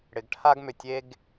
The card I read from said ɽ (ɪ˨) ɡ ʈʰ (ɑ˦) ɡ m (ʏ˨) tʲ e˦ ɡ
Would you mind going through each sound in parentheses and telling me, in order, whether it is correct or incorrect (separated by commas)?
correct, incorrect, correct